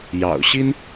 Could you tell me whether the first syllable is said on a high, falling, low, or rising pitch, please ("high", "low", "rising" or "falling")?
low